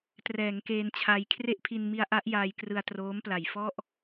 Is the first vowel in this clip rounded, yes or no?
no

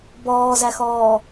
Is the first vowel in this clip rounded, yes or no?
yes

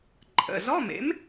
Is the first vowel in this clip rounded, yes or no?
no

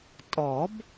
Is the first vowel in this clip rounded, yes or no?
yes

